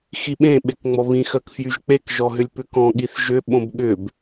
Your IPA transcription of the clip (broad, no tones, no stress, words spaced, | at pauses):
xiɓẽ ɓekŋ͡mɔβĩ xɜkfjyʒk͡pek ʒɔɦʏlʲpʏkɔ̃ ɠiθʒʏ ɓõbɠʏb